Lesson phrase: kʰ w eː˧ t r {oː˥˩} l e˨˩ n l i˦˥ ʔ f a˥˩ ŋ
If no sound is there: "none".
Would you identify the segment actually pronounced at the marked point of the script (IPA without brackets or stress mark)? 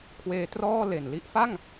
ɔː˥˩